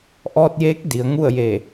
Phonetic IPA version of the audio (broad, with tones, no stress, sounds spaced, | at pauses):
ʔ ɔː˧ t̚ j eː˧˥ k̚ d i˩˧ ə̯ ŋ u˥˨ ə̯ j e˧˩